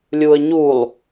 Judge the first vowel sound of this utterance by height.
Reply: high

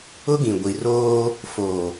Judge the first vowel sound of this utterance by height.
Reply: high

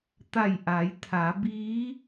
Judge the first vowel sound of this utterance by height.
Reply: low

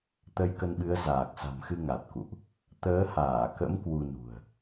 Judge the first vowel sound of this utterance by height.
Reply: mid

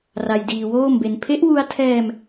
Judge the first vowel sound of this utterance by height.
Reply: low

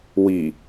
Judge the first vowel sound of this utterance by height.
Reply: high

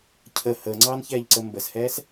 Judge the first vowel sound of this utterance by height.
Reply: mid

